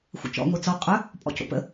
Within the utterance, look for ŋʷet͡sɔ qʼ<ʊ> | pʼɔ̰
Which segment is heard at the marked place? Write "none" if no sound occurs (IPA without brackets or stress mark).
ɵ